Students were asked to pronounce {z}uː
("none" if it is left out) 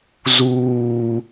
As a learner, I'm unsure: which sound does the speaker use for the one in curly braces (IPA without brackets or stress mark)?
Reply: z